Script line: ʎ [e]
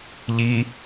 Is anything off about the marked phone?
yes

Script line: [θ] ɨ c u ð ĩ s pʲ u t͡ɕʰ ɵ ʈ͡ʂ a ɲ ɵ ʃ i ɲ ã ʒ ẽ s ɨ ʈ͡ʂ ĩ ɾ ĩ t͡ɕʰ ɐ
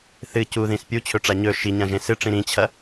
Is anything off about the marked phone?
no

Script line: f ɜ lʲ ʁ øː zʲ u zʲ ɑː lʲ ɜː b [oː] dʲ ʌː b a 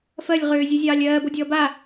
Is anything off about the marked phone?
yes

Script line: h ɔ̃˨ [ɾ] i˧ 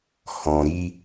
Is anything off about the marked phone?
no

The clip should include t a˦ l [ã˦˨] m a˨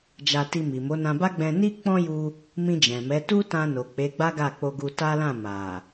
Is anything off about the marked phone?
no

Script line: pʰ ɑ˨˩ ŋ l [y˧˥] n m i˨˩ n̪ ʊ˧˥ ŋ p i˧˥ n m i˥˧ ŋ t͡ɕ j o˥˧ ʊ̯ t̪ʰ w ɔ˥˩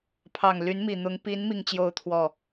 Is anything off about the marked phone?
no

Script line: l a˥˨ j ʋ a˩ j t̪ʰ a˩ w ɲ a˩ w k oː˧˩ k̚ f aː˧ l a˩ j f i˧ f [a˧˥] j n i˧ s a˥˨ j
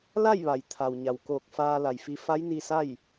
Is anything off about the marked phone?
no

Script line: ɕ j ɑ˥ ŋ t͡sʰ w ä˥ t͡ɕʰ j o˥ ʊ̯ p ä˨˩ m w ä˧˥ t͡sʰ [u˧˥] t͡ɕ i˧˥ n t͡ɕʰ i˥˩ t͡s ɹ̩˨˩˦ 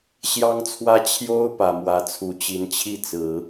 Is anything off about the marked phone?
no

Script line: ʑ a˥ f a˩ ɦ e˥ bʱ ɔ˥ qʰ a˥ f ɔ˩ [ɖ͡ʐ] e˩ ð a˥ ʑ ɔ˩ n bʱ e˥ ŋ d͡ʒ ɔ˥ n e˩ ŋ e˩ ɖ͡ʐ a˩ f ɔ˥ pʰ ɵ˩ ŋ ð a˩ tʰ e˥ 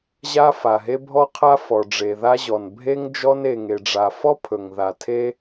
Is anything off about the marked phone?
no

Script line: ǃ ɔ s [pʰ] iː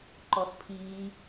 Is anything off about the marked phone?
no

